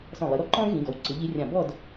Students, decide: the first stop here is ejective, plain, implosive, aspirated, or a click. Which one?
click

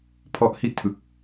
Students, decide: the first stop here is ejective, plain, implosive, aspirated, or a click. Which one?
aspirated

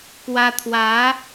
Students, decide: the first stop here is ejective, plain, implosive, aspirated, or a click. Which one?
plain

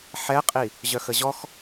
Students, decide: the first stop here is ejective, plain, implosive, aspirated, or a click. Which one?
ejective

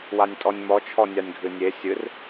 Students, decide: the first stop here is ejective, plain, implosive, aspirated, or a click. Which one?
ejective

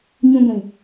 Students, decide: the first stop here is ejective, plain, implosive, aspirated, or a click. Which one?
plain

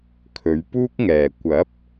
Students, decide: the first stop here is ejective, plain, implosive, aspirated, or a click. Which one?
aspirated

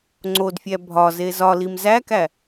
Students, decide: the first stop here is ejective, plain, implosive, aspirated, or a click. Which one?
click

